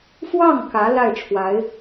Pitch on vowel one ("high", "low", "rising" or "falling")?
falling